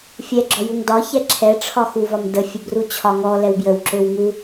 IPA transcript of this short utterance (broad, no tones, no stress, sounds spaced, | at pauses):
fʲ ɛ ɡ͡ǁ ɔ j u ŋ d ɒ ç ɛ ǁʰ ɛ ʈ͡ʂʰ ɒ x u v ɒ m d ə fʲ ə b r u t͡ɕʰ ɒ ŋ ɔ l ɛ w b j ə w ǁ ø w ŋ u